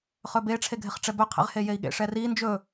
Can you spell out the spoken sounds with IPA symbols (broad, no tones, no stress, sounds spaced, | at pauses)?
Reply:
χ ɵ b e ʈ͡ʂʰ e ɡʱ ɪ χ ʈ͡ʂ ɛ b ɵ qʰ ḛ ʁ h e j e i̯ ɠ ḛ ʂ ɛ r i n d͡ʒ ɵ